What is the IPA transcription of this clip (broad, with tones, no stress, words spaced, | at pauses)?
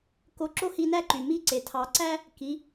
ko˧ǁo˥hi˧næ˥ ǃy˩mi˧ ǀe˩tʰɑ˩˧ ǀæ˥ | ki˩˧